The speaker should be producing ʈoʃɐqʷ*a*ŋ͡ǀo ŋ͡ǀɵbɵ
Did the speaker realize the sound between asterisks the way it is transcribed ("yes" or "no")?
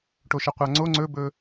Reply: yes